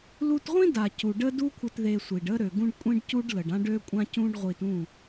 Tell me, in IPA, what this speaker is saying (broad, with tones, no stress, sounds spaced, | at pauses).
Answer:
l u˧ t ʁʷ ĩ˦ d a˨ c u˨ ɖ ə˦ d u˦ kʷʰ ə˧ t ð e˧ sʷ i˨ ɖ ə˦ ɾ ø˨ ɡ ũ˦ ɖ kʷʼ ĩ˦ ɖ c u˦ ɖ l ə˨ ɖ ã˦ ɖ ø˦ kʷʼ ã˦ c ũ˦ ɖ ʁʷ i˧ t ũ˦˨